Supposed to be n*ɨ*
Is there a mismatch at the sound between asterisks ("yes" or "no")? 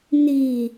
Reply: yes